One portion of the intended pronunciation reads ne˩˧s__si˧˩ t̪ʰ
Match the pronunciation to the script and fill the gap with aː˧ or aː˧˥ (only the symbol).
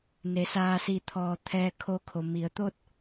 aː˧